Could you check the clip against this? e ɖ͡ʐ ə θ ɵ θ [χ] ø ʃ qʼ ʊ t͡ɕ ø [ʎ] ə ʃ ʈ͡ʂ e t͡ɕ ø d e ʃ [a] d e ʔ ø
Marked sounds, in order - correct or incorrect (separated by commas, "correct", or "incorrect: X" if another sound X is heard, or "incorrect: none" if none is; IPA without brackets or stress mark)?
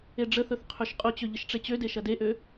incorrect: qʰ, correct, incorrect: ɐ